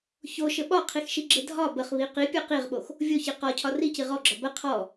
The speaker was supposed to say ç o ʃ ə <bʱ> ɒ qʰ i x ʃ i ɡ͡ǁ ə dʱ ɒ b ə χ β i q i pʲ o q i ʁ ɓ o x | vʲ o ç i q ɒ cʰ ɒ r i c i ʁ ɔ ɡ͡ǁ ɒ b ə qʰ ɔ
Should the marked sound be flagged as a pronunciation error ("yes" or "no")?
yes